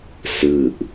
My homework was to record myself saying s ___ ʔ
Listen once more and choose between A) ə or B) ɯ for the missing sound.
B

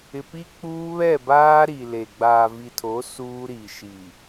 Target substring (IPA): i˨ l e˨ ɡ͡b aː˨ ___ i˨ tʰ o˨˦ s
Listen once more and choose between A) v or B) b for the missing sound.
A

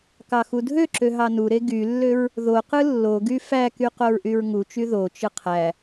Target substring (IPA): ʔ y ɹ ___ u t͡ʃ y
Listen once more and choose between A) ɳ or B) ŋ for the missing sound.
B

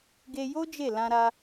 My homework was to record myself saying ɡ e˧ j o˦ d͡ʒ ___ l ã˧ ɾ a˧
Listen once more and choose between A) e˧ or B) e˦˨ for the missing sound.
B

